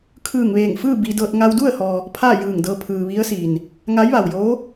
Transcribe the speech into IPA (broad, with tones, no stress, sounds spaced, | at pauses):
kʰ ɯː˧˩ ŋ ʋ eː˧˩ ŋ f ɯː˥˨ b i˧ d ɤː˧ t̚ ŋ a˧ w d u˥˨ ə̯ h ɔː˩ | pʰ aː˥˨ j ɯː˧˩ ŋ d ɤː˧ pʰ ɯː˩ ʋ i˧˥ ə̯ s iː˩ n | ŋ a˧˥ j ʋ a˩ w j oː˧˥